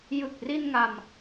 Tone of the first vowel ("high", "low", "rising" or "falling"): low